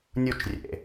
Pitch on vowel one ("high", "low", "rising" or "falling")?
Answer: falling